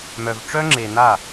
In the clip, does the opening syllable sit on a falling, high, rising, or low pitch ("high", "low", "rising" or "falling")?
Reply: low